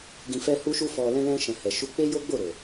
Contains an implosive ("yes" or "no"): no